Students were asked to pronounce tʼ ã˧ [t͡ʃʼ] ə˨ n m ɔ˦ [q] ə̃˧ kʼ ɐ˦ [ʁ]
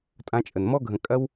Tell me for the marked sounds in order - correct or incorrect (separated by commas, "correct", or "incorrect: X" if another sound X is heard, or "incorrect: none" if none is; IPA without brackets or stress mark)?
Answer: correct, incorrect: ɡʱ, incorrect: w